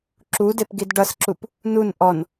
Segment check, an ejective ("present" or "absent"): absent